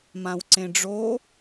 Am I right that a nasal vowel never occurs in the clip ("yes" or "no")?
no